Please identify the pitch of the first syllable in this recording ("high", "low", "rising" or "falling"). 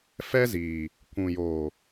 high